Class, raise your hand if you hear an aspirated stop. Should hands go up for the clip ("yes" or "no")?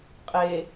no